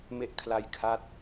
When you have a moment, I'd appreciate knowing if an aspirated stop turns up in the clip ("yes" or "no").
yes